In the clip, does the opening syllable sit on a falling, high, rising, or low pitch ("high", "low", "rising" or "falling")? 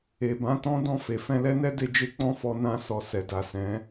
low